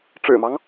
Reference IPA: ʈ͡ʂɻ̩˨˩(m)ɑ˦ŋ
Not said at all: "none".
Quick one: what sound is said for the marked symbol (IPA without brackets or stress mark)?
m